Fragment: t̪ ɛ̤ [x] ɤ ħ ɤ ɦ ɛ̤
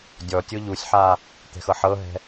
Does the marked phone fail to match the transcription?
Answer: no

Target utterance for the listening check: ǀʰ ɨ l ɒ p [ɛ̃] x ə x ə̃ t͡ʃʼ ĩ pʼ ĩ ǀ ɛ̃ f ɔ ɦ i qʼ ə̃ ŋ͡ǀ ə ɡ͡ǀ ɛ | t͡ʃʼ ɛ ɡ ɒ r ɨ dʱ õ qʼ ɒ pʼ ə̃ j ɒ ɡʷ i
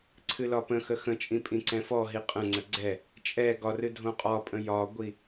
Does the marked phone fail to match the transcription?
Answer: yes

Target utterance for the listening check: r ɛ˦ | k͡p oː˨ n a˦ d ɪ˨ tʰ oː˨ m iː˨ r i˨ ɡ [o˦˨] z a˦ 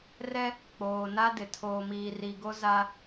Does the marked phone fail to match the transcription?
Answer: yes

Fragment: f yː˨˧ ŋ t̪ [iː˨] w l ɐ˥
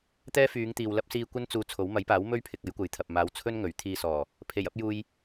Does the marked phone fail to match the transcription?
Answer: no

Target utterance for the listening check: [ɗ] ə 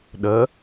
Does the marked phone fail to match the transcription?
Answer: no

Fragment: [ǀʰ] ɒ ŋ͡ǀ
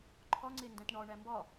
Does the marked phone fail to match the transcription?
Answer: yes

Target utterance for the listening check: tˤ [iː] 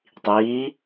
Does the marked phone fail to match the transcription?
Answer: no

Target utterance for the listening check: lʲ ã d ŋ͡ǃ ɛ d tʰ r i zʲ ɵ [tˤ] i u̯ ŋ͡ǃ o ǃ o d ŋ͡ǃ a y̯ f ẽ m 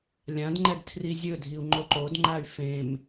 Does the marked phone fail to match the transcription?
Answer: yes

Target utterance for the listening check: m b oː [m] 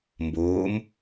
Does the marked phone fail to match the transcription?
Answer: no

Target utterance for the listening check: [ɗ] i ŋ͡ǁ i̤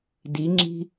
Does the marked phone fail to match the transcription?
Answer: yes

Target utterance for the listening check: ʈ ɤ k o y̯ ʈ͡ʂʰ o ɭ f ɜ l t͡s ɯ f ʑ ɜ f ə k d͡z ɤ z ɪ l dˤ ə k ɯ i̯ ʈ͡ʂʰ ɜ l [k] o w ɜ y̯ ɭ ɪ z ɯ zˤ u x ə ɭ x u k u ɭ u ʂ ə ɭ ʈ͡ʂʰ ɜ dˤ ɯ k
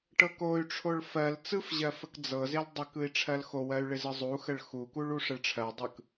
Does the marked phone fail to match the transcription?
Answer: yes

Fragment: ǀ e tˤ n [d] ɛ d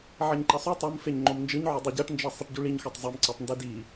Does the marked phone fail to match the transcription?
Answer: no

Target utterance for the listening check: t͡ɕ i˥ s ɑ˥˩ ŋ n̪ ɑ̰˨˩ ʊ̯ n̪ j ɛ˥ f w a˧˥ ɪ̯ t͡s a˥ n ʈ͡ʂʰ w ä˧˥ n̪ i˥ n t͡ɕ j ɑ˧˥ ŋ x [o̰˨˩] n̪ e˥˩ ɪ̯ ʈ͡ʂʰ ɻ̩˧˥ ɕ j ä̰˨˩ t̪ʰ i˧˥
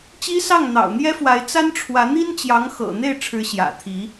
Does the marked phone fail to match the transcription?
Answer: yes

